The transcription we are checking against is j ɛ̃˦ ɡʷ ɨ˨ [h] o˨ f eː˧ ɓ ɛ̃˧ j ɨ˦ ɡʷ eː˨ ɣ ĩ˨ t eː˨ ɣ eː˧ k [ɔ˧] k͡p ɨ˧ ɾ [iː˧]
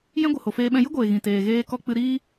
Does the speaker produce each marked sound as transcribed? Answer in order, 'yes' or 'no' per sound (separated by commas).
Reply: yes, yes, no